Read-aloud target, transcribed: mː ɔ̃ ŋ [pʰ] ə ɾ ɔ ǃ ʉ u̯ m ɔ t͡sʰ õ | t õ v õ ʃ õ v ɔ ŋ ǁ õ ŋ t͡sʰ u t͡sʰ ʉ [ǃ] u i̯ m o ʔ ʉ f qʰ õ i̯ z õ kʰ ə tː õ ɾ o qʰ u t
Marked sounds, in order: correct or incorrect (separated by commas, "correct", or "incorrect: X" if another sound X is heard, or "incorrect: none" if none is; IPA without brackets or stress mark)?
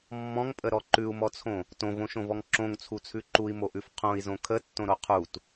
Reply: incorrect: pʼ, correct